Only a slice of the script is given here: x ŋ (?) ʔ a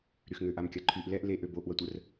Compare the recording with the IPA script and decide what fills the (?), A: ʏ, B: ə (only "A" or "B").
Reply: A